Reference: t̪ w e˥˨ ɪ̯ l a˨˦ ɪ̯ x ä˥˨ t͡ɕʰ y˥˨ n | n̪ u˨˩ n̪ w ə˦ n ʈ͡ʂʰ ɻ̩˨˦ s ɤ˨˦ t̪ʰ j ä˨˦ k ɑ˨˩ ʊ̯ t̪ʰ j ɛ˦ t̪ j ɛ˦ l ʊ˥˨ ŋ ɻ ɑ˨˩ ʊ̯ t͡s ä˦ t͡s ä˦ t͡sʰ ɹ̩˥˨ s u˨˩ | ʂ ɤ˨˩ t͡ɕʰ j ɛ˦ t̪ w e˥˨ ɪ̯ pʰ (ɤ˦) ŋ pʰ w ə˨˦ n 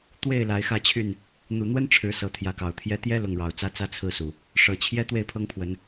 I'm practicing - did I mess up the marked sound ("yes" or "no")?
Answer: no